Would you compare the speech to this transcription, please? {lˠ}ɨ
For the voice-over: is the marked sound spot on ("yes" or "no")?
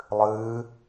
yes